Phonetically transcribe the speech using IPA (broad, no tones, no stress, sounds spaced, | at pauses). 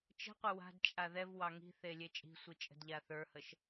t͡ʃ ə̤ qʷ ɪ w a̤ d t͡ʃʼ a ð ɛ v w ɑ ŋ i̤ θ e lʲ e t͡ʃʼ i̤ sʷ i t͡ʃʼ ə̤ d ʎ a θ ə˞ h ə ʃ